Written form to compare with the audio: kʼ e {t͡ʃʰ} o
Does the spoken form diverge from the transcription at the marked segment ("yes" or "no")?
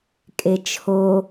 no